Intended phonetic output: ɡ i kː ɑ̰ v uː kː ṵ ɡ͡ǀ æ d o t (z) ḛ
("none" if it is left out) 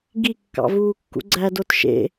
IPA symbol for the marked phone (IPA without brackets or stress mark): ʃ